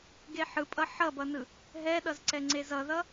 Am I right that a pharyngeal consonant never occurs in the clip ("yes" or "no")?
no